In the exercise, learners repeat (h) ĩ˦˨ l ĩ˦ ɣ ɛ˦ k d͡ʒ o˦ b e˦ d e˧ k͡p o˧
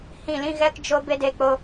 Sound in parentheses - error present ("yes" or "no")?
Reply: no